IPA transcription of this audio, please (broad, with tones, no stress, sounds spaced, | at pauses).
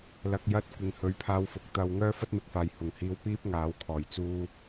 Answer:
l ɐ˨ k̚ j ɐ˧ t̚ kʷ ɪ˨ ŋ h ɵ˨˧ ɥ pʰ aː˧ w f ʊ˨ k̚ t̪ ɐ˨ w ŋ œː˥ f ɐ˥ t̚ m ɪ˨ k̚ f aː˨ j h ʊ˨˩ ŋ h iː˧ w p iː˥ p̚ ŋ aː˨˥ w kʰ ɔː˨˩ j t͡s uː˥